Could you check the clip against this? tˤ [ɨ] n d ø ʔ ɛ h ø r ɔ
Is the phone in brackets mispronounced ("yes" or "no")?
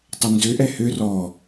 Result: yes